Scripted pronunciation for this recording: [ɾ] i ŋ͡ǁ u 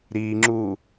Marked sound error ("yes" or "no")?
no